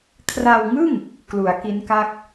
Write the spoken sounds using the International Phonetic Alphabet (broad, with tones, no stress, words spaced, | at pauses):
kʰra˧wŋɯ˥˩ŋ | klu˩˦a̯ki˦˥nka˥˩k̚